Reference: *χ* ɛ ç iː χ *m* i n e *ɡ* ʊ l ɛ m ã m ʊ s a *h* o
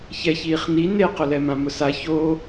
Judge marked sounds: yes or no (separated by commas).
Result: no, no, no, no